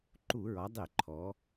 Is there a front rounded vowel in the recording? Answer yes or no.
no